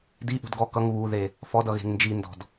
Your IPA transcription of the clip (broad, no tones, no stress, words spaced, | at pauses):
diʔṳd ɡɔ kʌŋ βuðe | fɔdʌɣe̤ŋ nd͡ʒindɔ̤d